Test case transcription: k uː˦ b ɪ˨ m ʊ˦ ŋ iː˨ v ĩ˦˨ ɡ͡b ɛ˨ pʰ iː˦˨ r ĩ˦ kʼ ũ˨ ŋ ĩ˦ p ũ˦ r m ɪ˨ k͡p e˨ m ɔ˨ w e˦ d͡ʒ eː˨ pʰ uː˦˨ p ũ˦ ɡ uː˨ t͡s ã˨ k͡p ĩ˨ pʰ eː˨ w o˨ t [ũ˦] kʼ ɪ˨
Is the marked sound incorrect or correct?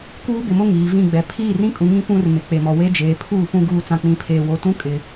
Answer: correct